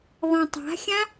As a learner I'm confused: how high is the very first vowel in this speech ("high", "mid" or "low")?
low